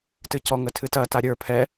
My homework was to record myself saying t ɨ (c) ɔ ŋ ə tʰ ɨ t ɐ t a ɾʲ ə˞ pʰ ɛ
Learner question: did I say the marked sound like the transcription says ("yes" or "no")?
yes